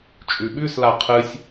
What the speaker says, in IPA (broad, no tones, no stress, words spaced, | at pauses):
t͡ʃʼʉɓʉsla qʰɨsʲ